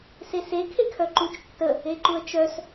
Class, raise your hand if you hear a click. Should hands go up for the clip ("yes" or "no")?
yes